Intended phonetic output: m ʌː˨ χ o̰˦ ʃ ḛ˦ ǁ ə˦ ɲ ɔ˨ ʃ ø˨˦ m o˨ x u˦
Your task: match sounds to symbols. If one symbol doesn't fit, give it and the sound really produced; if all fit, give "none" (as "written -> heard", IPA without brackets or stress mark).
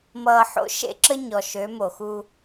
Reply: χ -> ħ